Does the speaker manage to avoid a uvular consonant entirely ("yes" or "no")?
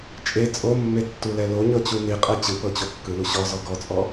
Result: no